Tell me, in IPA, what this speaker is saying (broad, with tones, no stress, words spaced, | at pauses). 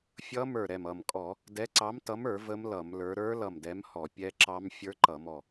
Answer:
fʲʌ˦˥ mə˞˧˩ɾɛ˧˩mʌ˧˩mkʼɔ˧˩˧ | dɛ˨˥ǀɑ˨˥mtʌ˨˥mə˞˧˩˧ və˦˥mlʌ˧˩˧mlə˞˨˥ ɾə˞˦˥ lʌ˧˩mdɛ˨˥mhɔ˧˩˧ pʲɛ˦˥ǁɑ˦˥m fʲə˞˦˥ǃʌ˧˩˧mɔ˧˩